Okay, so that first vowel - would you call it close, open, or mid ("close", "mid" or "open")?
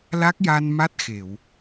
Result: open